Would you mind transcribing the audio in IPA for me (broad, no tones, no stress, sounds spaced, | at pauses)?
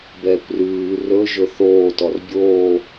b ɛː kʷ r ʉː r ɵ ʒ ɵ θ oː t ɔ r bʲ oː